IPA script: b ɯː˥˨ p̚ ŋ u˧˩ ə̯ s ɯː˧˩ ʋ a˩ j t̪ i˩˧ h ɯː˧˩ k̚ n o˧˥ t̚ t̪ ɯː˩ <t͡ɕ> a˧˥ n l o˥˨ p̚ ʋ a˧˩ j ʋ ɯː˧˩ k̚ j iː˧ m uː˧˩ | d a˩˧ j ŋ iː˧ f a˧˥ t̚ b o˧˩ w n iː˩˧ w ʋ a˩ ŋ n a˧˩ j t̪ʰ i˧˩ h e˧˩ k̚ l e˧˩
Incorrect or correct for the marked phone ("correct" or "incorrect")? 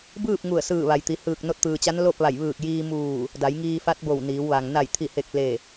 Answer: correct